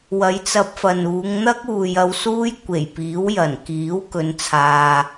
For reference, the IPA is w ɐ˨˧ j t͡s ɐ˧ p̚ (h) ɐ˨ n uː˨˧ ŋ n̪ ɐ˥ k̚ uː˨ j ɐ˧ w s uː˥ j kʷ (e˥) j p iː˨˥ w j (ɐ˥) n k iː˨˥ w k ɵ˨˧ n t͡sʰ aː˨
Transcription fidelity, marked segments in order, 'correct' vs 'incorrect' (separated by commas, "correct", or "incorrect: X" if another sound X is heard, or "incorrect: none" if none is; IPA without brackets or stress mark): incorrect: f, incorrect: e˨˩, incorrect: ɐ˨˩